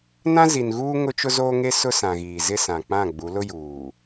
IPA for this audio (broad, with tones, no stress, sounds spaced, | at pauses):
n ã˦ z i˨ n ɣ uː˦ ŋ ʊ˦ t͡ʃ ʊ˦ z oː˦ ŋ e˦ s ʊ˦ s ã˨ ɣ iː˨ z ɪ˦ s ã˨ k͡p ã˦˨ ɡ͡b u˨˦ l ʊ˦ j uː˨